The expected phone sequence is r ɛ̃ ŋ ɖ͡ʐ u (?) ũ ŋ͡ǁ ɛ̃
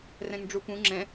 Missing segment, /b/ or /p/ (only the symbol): p